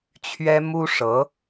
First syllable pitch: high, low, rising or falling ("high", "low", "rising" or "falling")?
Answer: high